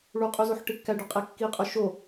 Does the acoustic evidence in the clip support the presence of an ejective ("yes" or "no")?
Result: yes